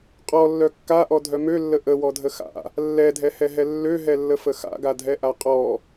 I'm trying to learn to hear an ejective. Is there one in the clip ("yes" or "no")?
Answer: yes